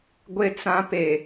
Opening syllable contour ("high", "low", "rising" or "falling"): high